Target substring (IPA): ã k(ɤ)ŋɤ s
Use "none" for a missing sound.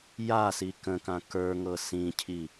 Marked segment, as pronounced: ə˞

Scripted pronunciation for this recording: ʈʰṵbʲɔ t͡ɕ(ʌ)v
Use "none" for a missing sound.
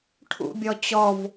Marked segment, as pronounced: ɔ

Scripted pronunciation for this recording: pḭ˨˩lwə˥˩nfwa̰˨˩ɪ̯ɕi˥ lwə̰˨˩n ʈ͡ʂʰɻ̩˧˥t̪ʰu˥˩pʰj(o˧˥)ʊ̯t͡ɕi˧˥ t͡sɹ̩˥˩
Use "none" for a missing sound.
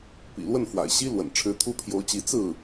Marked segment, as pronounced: o˧˥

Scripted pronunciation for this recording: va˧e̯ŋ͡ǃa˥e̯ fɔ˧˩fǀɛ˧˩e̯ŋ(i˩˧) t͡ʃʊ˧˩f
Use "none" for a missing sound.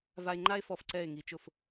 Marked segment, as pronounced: i˩˧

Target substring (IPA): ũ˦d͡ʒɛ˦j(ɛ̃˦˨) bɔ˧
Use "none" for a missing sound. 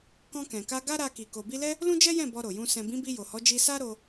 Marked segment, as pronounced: ɛ̃˦˨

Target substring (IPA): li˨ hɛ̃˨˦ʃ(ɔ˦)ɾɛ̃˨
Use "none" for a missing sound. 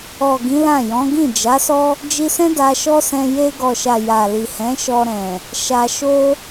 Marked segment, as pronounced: ɔ˧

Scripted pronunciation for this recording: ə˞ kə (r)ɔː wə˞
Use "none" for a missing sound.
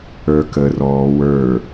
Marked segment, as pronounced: r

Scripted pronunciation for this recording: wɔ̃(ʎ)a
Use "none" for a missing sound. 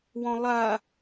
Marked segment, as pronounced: lˠ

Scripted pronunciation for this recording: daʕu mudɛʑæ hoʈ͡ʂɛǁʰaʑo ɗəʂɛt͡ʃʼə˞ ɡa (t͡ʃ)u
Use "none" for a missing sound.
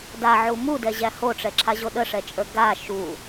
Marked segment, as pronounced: ʃ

